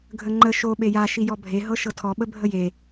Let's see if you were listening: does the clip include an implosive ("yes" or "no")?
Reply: yes